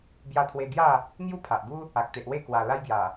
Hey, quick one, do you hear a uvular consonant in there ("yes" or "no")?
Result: no